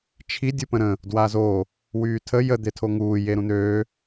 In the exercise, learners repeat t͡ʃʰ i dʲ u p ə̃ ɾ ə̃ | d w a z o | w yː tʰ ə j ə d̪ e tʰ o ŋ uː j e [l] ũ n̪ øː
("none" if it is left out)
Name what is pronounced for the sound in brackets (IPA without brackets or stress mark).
ɾ